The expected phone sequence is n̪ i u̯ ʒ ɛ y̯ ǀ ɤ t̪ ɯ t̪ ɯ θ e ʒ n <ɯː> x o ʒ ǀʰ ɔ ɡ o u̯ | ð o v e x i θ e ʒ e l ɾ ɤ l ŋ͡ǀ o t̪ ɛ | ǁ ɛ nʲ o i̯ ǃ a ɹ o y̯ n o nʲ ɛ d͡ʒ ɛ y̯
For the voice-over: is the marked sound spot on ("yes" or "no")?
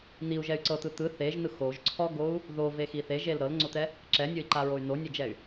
no